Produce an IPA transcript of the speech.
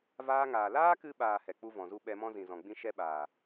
vaː˧ŋaː˨ laː˦kɨ˧ɓaː˨ hɛ˨k͡pu˦vɔ̃˨zu˦ ɓɛ˧mɔ̃˦ zĩ˨zɔ̃˨ɡ͡bĩ˦ ʃɛ˦ɓaː˨

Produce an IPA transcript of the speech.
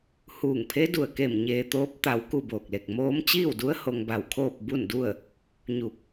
huː˧˩ŋpʰe˧˥ du˧˩ə̯ke˧˩m ɲeː˧t̪oː˧˥p̚ t̪a˧w ku˥˨boː˧˩k̚le˧˩k̚ moː˧˥m t͡ɕiː˥˨wdu˧˥ə̯ ho˧ŋba˧˩wkʰoː˥˨p̚ bu˥˨ndu˥˨ə̯ | ɲu˧˩k̚

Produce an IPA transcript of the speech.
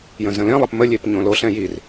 jə̃zə̃lẽlˠɐp məlʲep ɲõloɬɛ̃ jir

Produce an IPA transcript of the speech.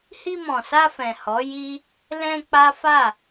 hi˧mɔ̃˨sa˧fɛ̃˨ hɔ˨˦ji˦ | lɛ̃˧ k͡pa˦fa˦˨

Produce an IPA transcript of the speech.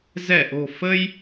zɛ˧˩ʔo̤˨˩ fə˧j

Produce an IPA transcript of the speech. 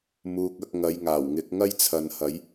muː˧k̚ɐ˨˥k̚ ŋɐ˨˧jŋaː˨˩wŋɪ˨˥k̚ ŋɐ˥jt͡sʰɐ˨n hɐ˨˥j

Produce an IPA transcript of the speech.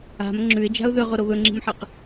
a̤m ŋ͡ǁʉɪ̯d͡ʒa̤ʊ̯ ðɵʁoɾo βɵŋ͡ǁi̤mħɨq

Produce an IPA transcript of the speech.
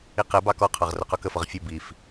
iqɛbɑ kɔqʰɑʁ rʊqʊkəfʌʁ fʲə bif

